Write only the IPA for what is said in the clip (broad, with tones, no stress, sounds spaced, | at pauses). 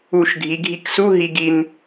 u˧˩˧ ʃ ɡʱ i˩˧ ɡʱ i˧ k s u˧˥˧ ɦ i˧ ɡ i˧ n